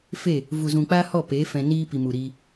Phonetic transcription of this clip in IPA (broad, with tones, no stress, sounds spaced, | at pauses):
f e˦˨ | v u˨ z ũ˨ k͡p a˦ h ɔ˦˨ p e˨˦ f ɛ̃˧ n iː˦ p i˨ m u˨ ɾ i˧